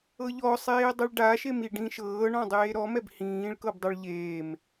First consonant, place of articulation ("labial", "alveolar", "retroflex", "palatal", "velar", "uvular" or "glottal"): palatal